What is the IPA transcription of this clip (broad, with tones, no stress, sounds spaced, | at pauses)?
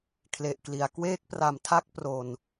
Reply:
kʰ l e˨˩ ʔ k l i˩˦ a̯ k w eː˥˩ k̚ p r a˨˩ m tʰ a˥˩ k̚ p r o˨˩ n